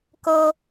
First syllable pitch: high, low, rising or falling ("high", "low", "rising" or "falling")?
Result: high